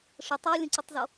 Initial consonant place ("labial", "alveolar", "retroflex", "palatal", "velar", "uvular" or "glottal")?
retroflex